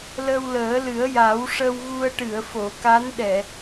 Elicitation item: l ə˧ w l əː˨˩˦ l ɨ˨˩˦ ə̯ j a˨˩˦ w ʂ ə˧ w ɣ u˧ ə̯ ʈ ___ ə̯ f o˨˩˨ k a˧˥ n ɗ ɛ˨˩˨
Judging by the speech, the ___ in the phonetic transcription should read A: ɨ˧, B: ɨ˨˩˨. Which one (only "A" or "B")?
B